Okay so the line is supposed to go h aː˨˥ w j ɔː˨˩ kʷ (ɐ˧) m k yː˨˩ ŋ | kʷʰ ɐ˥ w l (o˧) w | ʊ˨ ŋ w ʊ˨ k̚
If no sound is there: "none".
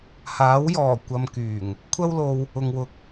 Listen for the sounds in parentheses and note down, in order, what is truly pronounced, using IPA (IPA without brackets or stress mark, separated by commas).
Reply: ɐ˧, o˧